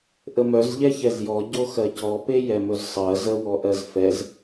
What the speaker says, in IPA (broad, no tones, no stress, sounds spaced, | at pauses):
ʔ ə m œ z ʎ ɛ ç ɛ z j ɔ ɟ o x ɜ c ɔ p e j ɛ m ɵ z sˤ ɜ z ə w ɔ ʔ ɜ z f ɛ z